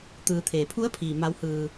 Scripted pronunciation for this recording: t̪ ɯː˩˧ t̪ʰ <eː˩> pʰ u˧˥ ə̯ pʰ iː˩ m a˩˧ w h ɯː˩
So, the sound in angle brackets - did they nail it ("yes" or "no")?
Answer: yes